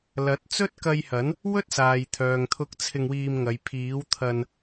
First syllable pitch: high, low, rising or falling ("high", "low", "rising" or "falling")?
rising